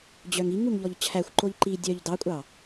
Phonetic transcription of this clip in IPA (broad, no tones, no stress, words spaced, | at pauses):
d͡ʑœŋiŋuŋ ʎɔʎt͡ɕʰæxʷǃoʎ ǃi dʲœʎ dɑkʷʼɑ